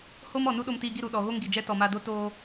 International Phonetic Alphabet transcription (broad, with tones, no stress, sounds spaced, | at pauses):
h o˦ m ɔ˨ n u˦ ɗ o˧ m t iː˧ ɡ i˦˨ ɾ u˨ ɗ ɔ˨ ɣ o˦ ŋ ɡ i˨ d͡ʒ ɛ˦ t ɔ˨ m a˧ d o˦ t oː˦